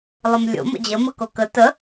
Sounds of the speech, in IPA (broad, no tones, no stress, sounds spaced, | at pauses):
lˠ ə m lʲ o̰ m ə̰ d͡ʑ ə m ə k o k ə t ə